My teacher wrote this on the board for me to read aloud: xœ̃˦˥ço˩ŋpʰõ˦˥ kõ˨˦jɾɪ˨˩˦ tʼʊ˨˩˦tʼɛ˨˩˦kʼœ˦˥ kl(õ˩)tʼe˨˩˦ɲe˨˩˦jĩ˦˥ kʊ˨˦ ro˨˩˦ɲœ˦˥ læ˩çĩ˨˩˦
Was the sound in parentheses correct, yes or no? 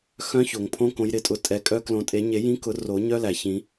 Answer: no